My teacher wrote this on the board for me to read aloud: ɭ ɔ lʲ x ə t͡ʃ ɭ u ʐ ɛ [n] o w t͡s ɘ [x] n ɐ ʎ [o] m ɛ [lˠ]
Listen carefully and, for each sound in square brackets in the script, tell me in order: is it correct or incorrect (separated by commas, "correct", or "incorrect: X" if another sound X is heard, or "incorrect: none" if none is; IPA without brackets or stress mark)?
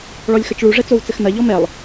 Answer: incorrect: t͡s, correct, incorrect: ɔ, correct